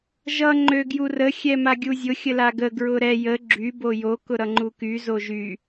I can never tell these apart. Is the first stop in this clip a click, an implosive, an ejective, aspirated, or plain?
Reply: click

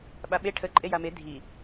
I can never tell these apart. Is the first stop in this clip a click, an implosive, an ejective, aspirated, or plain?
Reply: implosive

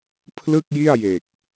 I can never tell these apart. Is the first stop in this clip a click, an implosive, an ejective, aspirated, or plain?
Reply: aspirated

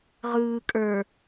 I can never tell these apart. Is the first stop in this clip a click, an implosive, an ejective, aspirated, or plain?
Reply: ejective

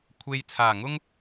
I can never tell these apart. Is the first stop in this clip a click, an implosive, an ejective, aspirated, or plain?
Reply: aspirated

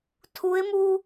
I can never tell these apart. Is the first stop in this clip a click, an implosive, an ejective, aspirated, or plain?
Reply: aspirated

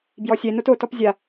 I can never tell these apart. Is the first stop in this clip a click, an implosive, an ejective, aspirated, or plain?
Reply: plain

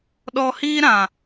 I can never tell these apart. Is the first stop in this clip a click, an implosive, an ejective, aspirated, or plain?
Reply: implosive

